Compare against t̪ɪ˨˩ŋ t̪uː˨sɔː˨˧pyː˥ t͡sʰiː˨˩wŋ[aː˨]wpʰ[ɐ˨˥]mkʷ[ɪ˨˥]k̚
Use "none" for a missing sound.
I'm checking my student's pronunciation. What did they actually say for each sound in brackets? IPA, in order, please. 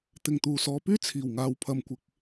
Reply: aː˨, ɐ˨, ɪ˨˥

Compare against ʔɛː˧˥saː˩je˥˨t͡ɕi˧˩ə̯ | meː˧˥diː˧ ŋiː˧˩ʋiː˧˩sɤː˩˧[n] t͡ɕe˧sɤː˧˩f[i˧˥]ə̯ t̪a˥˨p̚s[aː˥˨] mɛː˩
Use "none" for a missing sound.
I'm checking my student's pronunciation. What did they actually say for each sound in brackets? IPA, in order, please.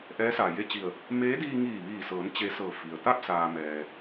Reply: n, i˩, aː˩

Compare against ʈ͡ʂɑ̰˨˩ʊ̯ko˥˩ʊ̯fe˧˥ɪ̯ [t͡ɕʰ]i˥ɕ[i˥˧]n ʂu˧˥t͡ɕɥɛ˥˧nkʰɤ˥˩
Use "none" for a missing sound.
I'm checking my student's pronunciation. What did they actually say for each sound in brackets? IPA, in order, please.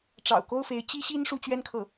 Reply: t͡ɕ, i˥

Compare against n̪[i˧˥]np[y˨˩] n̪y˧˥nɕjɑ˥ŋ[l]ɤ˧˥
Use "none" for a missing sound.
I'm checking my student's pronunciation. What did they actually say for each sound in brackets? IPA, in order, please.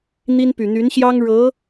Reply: i˥, y˨˩, ɻ

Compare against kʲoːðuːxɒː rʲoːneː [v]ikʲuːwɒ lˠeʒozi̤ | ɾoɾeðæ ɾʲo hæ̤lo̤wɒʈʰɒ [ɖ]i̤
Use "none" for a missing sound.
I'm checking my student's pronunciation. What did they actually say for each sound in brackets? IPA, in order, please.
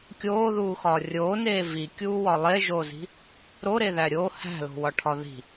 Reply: v, ð

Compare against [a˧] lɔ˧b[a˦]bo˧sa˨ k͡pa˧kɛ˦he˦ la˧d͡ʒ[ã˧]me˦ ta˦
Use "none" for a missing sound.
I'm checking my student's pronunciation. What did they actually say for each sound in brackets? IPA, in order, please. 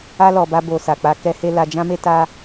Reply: a˦, a˦, ã˦

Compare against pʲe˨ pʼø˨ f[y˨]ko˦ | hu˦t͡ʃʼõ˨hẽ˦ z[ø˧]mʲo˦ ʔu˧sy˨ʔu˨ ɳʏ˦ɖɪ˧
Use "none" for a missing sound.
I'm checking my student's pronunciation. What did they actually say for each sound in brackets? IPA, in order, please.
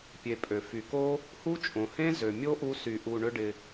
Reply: y˨, ø˨

